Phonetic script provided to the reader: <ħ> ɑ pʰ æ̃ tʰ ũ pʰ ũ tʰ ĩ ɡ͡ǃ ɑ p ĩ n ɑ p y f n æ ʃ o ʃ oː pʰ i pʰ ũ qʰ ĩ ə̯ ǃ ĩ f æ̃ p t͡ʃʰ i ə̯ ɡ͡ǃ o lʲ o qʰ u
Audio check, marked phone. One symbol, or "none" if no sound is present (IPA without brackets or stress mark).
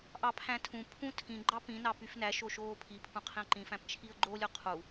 ʔ